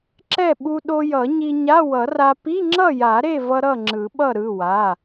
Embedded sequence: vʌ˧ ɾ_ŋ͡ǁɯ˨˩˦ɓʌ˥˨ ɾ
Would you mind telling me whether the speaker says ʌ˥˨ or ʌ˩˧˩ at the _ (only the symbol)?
ʌ˥˨